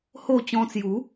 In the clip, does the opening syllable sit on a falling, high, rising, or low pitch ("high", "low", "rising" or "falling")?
falling